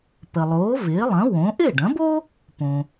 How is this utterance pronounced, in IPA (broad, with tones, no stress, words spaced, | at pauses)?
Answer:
pə˩lˠoː˩˥vɪː˩˥ lˠɐ̃˩˥ wõ˩˥ ʔɪː˥˩ɖɐ̃˩˥bo˥ | põ˩